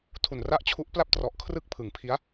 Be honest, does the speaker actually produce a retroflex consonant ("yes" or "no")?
no